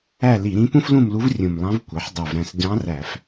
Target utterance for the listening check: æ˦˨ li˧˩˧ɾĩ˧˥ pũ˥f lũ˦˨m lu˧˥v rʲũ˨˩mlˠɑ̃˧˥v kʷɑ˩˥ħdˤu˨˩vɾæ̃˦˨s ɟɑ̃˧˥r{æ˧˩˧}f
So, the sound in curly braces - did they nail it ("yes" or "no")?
yes